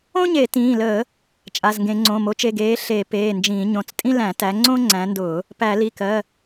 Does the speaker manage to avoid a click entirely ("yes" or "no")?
no